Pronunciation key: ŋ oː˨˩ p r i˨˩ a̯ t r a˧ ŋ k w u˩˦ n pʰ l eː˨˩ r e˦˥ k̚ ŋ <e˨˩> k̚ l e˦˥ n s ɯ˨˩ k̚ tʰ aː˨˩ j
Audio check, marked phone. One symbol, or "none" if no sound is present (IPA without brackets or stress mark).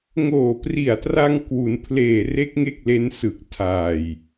e˥˩